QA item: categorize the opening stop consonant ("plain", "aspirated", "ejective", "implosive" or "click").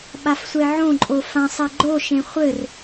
implosive